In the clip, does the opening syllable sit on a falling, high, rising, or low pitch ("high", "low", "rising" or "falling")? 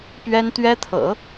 high